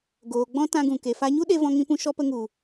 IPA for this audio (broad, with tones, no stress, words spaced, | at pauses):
ɡoː˨ɡ͡bɔ̃˦ tã˧ɡũ˨ ke˨fa˧ɲu˦ɗe˧ vɔ̃˧ŋĩ˧pũ˧ ʃɔ˧pə˧ŋu˨